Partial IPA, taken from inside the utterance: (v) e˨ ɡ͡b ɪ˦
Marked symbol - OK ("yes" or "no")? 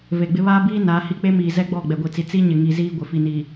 yes